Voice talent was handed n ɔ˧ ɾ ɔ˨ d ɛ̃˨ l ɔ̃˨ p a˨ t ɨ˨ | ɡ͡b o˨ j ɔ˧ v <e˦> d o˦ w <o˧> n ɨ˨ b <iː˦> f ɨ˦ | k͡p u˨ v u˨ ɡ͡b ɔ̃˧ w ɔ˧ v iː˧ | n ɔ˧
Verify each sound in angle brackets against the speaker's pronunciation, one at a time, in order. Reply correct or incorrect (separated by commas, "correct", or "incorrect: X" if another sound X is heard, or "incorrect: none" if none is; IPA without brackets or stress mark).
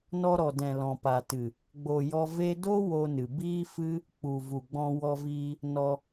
correct, correct, correct